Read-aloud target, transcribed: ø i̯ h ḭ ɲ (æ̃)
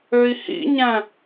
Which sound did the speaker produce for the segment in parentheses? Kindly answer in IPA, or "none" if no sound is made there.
æ̃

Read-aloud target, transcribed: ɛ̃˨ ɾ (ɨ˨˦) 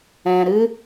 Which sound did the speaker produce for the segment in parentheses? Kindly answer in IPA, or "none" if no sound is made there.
ɨ˦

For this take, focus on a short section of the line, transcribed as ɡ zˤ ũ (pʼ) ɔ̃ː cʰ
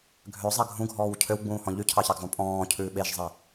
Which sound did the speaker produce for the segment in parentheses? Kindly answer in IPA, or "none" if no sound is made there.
pʼ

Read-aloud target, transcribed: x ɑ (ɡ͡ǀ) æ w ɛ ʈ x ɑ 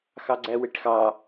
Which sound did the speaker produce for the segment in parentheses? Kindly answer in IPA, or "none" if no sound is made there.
ɡ͡ǀ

